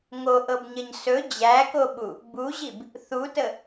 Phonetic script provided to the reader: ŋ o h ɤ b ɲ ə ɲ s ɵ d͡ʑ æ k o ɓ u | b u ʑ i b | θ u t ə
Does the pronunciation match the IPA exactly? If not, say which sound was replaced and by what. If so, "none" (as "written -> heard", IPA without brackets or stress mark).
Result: h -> ʔ